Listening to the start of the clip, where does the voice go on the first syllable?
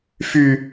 high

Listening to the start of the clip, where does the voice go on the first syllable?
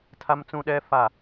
high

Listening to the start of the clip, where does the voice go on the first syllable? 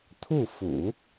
falling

